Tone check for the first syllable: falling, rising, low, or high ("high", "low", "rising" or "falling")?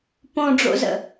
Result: low